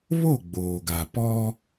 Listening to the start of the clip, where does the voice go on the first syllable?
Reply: falling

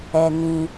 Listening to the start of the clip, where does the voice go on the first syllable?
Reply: low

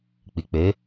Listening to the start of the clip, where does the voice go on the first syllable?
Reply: low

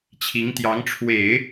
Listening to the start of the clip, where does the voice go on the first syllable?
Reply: rising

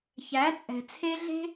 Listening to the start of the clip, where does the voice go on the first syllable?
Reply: rising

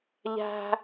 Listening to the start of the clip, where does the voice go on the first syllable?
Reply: high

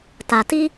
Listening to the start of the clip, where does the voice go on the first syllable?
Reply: low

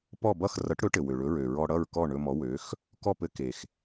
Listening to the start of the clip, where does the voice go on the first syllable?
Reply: falling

